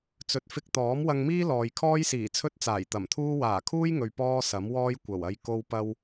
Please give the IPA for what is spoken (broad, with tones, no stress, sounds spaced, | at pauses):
t͡s ɵ˨˥ t̚ f ɪ˧ k̚ t̪ ɔː˨˥ m w ɐ˧ ŋ m iː˥ l ɔː˨ j kʰ ɔː˥ j s iː˨˩ t͡sʰ ɵ˥ t̚ t͡s aː˨˩ j t̪ ɐ˨˩ m t̪ʰ uː˥ w aː˨˩ kʰ uː˥ j ŋ ɵ˨ ɥ p ɔː˥ s ɐ˨˥ m w ɔː˥ j kʷ ɐ˨˩ w ɐ˧ j k o˧ w p ɐ˧ w